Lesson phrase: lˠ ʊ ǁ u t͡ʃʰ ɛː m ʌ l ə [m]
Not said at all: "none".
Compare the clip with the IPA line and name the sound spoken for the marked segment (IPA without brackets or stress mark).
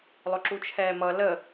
none